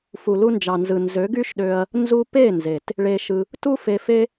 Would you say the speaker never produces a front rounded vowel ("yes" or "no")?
no